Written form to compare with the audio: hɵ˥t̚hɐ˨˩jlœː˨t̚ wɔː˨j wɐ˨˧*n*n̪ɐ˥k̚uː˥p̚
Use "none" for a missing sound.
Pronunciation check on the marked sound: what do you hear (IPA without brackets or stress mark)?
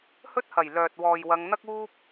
ŋ